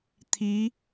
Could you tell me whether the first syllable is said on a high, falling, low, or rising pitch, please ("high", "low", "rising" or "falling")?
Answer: rising